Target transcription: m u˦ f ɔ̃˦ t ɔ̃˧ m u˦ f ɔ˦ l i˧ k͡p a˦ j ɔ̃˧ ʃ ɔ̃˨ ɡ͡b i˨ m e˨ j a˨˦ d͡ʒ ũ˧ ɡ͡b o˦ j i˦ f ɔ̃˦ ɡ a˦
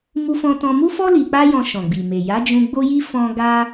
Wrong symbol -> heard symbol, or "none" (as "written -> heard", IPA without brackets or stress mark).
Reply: none